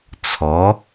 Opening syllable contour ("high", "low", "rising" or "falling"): rising